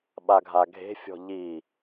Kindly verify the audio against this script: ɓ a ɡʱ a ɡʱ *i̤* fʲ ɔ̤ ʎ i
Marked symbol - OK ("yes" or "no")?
no